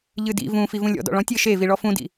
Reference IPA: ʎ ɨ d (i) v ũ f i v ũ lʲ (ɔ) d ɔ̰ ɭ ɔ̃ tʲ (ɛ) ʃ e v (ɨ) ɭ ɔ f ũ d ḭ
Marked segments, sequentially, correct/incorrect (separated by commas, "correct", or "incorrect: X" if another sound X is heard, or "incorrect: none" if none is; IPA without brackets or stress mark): incorrect: ḭ, incorrect: ɔ̰, incorrect: ɘ, incorrect: i